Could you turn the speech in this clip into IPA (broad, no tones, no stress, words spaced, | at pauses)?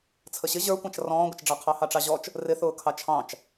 t͡sʰəɕɪ ʑə˞kʷɑ̃t͡ʃ rɔ̃ːɡʷɪt͡ʃɖ͡ʐɑ qʰɑhɑʈ͡ʂɑʑɔt͡ʃ | rɪθʊː kʰɑt͡ʃʰɑ̃t͡ʃ